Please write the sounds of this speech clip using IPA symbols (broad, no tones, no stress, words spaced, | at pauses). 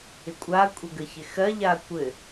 ɪkʷʼakʷʼɛ ɡəçɪxɜʎa kʷɘ